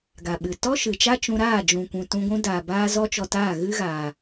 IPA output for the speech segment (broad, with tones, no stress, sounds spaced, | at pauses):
ɡ a˨ ɓ ɨ˨ t ɔ˦ ʃ ɨ˨ t͡ʃ a˦ t͡ʃ ũ˧ ɾ aː˦˨ d͡ʒ ũ˨ kʷ ũ˨ t ũ˧ ɡʷ ũ˧ d aː˨ b aː˧ z ɔ˧ t͡ʃ ɔ˨ t aː˦˨ ɣ ɨ˦ ɣ aː˨